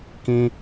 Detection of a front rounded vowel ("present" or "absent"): absent